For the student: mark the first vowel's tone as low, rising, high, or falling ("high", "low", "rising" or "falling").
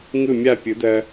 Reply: falling